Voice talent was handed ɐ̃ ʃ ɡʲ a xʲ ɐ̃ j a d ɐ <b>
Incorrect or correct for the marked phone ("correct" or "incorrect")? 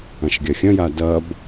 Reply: correct